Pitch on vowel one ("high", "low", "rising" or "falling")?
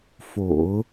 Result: low